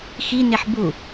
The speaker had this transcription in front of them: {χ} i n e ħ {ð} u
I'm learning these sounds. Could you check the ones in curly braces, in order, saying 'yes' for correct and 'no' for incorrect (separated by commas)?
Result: no, no